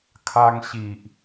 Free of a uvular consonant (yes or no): yes